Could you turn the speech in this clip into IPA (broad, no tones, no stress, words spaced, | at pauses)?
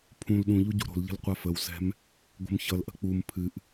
pʰũl ɗũʎu ɟṳɾo̤lʎə̤l qʷafəwsɛ̤m | ɡʷə̤mçʌlʔə̤ k͡pum pʰɨʔ